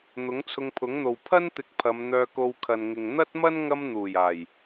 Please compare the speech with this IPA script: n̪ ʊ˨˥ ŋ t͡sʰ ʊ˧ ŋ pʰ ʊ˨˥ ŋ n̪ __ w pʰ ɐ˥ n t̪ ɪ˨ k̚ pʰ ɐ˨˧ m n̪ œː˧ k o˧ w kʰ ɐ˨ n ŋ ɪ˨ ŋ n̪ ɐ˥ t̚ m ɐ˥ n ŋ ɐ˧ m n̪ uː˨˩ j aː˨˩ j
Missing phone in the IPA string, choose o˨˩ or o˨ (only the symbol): o˨